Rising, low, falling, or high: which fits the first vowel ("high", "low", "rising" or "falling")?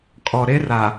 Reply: low